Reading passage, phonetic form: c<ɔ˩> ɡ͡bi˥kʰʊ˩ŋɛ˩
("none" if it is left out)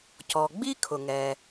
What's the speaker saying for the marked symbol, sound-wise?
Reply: ɔ˩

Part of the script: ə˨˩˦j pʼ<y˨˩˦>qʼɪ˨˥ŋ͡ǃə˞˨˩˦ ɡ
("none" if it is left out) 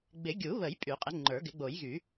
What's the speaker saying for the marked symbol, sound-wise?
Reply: y˨˩˦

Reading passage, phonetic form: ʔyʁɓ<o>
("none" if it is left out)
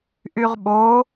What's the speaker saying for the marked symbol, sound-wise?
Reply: o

